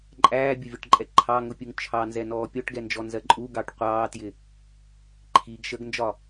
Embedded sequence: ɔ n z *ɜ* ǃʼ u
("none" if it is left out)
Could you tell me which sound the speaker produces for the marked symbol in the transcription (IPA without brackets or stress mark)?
ɜ